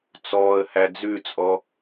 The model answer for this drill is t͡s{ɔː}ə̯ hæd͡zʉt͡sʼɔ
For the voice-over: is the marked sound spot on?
yes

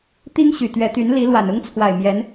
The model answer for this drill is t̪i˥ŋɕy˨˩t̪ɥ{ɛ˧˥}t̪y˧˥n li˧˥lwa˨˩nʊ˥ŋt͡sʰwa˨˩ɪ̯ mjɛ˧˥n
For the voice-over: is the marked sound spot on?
yes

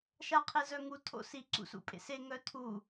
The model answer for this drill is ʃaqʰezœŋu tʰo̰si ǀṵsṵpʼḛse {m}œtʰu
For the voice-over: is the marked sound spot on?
no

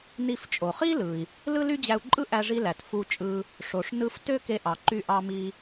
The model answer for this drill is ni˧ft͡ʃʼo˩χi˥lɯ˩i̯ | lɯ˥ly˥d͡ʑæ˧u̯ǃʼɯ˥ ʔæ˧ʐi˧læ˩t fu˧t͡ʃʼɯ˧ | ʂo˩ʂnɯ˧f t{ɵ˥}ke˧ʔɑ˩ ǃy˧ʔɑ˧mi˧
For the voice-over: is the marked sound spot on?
no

